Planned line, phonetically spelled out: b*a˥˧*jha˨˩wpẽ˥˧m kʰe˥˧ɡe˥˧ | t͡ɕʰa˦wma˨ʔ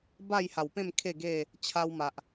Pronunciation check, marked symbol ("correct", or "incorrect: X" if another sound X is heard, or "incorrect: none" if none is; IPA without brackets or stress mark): correct